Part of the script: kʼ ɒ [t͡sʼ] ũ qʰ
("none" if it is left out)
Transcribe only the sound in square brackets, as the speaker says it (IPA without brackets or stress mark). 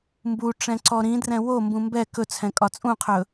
t͡sʼ